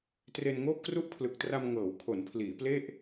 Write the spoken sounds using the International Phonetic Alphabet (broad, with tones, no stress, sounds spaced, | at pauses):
t r e˧ n ŋ oː˥˩ p̚ k r u˥˩ ʔ pʰ l ɯ˨˩ k̚ t r a˧ m ŋ ɤː˩˦ w kʰ o˩˦ n pʰ l iː˩˦ p l e˥˩ ʔ